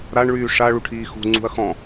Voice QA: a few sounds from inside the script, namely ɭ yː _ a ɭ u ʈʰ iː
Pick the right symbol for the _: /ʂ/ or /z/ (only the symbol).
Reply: ʂ